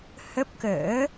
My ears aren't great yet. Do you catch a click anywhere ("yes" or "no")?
no